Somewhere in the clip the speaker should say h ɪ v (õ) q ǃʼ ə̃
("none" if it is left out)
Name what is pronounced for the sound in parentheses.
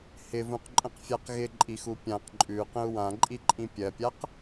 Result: ũ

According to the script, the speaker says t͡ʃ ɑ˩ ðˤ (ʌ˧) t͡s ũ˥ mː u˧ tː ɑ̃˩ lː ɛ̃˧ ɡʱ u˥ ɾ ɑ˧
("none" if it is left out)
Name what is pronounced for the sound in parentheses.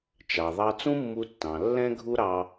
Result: ɑ˧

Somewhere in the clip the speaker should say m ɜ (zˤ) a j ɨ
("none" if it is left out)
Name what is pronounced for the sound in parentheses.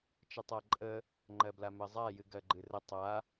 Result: zˤ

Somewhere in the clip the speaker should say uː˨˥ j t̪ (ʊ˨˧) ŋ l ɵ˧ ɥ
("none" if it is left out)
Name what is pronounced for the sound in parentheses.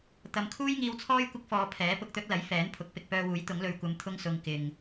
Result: ʊ˨˥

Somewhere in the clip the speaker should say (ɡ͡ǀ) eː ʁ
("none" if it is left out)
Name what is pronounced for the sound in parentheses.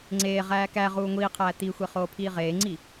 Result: ŋ͡ǀ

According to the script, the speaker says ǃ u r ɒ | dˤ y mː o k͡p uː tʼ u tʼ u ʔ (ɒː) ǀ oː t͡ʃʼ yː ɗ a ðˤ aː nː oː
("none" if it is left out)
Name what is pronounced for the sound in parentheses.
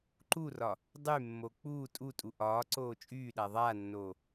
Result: ɒː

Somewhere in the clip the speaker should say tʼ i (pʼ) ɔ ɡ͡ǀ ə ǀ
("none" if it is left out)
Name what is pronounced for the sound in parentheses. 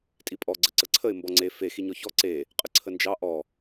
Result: pʼ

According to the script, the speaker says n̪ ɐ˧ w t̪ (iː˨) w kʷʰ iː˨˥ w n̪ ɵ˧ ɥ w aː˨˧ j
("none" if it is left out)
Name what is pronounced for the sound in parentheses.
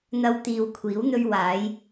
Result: iː˨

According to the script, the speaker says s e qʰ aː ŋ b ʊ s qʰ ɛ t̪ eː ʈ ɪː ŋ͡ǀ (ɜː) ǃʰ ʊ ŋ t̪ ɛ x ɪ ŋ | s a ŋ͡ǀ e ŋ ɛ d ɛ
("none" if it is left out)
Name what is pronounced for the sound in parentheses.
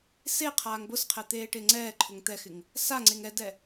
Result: ɛː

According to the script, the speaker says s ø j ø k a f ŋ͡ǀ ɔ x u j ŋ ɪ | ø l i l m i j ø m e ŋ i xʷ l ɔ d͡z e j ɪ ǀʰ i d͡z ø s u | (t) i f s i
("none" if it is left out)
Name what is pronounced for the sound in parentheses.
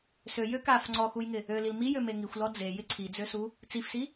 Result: t͡s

